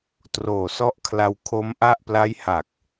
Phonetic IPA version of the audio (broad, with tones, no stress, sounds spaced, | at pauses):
t r oː˨˩ s ɔ˦˥ ʔ kʰ l a˧ w kʰ o˦˥ m ʔ a˥˩ ʔ p l a˦˥ j h a˨˩ k̚